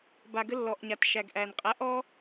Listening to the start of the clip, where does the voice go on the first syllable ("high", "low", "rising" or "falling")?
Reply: low